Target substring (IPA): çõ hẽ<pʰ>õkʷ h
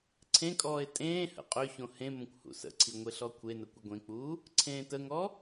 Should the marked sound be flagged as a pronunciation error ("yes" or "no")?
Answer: yes